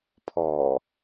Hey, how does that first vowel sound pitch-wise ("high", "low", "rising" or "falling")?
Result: low